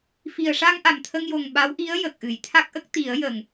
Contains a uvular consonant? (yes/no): no